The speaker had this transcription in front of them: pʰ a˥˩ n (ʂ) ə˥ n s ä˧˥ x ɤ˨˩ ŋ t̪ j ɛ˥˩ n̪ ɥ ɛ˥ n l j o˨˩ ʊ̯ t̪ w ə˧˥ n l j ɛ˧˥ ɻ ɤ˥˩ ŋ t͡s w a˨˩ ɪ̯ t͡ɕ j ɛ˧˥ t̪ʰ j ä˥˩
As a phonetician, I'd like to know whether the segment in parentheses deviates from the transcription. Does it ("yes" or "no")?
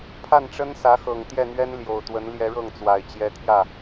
yes